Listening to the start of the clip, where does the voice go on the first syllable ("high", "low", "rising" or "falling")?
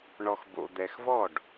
low